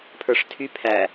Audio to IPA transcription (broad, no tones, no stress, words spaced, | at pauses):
pʰə˞ʂtʰy pʰæ